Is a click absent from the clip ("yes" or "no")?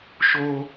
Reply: yes